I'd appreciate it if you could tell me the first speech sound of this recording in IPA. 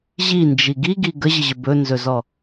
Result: ʑ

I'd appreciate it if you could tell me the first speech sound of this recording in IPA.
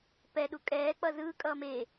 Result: p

